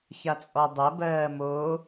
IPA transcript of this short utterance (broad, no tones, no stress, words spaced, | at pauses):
çat͡sʼɔdˤɜ bɜːmo